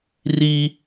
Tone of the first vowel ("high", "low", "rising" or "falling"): high